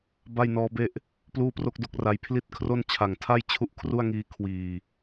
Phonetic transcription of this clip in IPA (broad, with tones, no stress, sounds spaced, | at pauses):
b a˥˩ j n ɔː˦˥ b e˥˩ ʔ | p l uː˥˩ p r o˥˩ k̚ d o˥˩ k̚ r a˧ j pʰ l i˥˩ t̚ kʰ r o˥˩ n t͡ɕʰ a˨˩ ŋ tʰ a˥˩ j t͡ɕʰ u˥˩ ʔ kʰ r u˥˩ a̯ ŋ iː˦˥ kʰ w iː˨˩